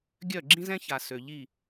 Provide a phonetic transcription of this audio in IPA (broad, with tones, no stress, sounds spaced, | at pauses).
ɡʲ œ˦˨ ɡ͡ǁ ĩ˦ z ɛ̃˦ ç a˨ s ø˨ ʎ i˦˨